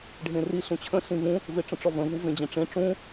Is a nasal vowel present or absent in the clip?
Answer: present